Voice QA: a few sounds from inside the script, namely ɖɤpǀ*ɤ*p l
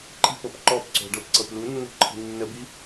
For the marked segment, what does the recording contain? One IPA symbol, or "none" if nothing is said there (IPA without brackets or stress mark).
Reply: ɤ